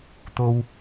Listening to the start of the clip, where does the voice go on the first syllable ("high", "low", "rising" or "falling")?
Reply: high